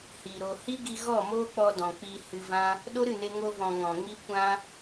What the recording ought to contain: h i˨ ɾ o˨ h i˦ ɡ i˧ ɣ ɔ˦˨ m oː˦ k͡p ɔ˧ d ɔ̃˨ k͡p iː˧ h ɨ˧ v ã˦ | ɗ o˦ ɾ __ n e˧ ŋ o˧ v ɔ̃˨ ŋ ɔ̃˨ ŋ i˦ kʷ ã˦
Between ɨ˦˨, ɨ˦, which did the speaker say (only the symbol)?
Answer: ɨ˦˨